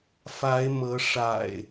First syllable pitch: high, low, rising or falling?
rising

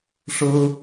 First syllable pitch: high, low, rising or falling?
high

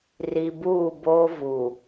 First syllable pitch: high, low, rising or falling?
low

